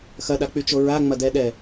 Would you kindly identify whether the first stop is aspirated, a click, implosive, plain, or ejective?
implosive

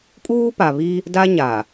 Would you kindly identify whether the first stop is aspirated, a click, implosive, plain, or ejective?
ejective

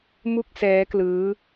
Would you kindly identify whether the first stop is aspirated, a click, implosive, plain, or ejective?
plain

